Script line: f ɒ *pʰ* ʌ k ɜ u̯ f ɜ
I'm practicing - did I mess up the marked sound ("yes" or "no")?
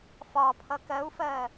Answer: no